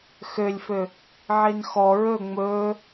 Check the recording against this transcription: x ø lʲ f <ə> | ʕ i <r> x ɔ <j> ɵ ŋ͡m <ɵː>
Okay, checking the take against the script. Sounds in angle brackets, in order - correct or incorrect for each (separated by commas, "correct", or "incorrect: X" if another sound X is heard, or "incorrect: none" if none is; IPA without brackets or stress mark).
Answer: incorrect: ø, incorrect: n, incorrect: ɹ, correct